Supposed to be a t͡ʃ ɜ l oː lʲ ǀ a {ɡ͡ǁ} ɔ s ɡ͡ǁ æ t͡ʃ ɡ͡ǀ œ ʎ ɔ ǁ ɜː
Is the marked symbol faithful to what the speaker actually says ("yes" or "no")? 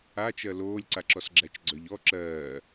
no